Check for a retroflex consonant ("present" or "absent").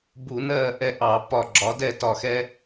absent